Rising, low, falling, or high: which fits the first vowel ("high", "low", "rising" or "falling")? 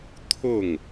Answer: falling